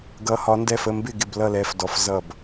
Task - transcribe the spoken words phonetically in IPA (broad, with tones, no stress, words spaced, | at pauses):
ɡʌ˨˥hɒ˨˥ndɛ˥˩f ə˥˩mbɪ˥˩ ɡɪ˥˩blʌ˥˩lɛ˨˥f dɔ˨˥fzʌ˥˩b